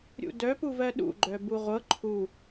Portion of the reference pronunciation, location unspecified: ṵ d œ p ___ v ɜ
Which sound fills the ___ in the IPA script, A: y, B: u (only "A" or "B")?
B